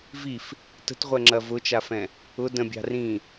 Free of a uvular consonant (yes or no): no